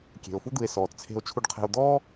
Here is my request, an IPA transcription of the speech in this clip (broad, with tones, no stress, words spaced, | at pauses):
kʲe̤˩o̯fu˦d̪ɯ˨e̯sɔː˩t t͡sʰe̤˨o̯t͡ʃʰu˨ɖqʰe̤˨o̯ d̪ɔː˥